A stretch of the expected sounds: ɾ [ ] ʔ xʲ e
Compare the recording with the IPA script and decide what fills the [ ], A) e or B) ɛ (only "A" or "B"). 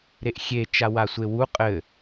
A